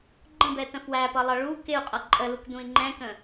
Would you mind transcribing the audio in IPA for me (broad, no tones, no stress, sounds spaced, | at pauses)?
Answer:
ɡ͡ǃ ə̃ b ɛ t ə̃ f w æ p ʌ lˠ ʌ ɭ u k ɪ u̯ qʼ ʌ ǃʼ ə l u k d ũ i̯ ŋ͡ǃ ɛ̃ k ə̃